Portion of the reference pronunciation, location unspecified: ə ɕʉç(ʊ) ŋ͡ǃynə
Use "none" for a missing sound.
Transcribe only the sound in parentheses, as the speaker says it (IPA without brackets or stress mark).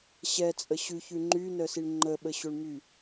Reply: ʉ